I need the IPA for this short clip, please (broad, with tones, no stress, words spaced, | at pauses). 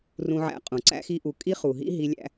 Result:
rũ˧ʕæ̰˧ qʼũ˨ǀæ̰˦xi˦ʔu˧ kʼi˦χu˨ɦḭ˦ ɦi˧lʲæ̰˧